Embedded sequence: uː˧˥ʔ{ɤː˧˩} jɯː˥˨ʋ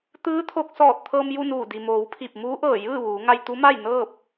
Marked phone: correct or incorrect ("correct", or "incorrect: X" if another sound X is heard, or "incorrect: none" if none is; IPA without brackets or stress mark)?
correct